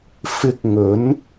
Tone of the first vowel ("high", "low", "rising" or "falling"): high